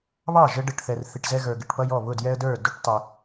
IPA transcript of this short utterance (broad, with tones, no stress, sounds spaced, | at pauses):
β ɑ˥˩ ʒ ə˦ ɖ ə˨ ʈ θ ɛ˨ r θ i˨ ʈ z ɛ˦ ɣ ə˞˨ ɡ ɪ˨ ʈ p ʌ˦ j ɔ˥˩ β ʊ˥˩ d j ɛ˦ ə̯ d ə˞˥˩ d ʊ˦ ʈ tˤ ɪ˨